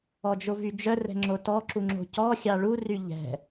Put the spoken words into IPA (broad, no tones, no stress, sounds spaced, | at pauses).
ɔ d͡ʒ o v y d͡ʒ œ r ɛ̤ ŋ͡ǁ o t ɔ ǁ u ŋ͡ǁ o̤ c ɔ xʲ ɑ ɭ u r y ʎ ɛ̤